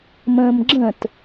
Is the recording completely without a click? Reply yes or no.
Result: no